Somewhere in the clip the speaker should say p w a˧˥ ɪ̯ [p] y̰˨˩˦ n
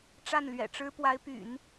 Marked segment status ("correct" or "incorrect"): correct